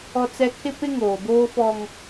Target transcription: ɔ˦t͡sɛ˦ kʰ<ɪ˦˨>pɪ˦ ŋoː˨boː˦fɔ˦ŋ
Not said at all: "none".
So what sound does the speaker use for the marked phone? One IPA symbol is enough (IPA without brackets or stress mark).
ɪ˦